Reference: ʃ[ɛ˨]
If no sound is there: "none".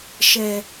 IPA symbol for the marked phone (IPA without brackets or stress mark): ɛ˨